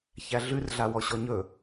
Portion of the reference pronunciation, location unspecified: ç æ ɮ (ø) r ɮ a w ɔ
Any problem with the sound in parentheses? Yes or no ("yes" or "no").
yes